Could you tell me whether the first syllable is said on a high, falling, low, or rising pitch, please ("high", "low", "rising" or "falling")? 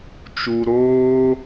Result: low